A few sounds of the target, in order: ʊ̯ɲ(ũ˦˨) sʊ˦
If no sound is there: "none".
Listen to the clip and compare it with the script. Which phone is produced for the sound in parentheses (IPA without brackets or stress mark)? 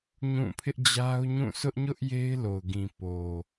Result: ũ˦˨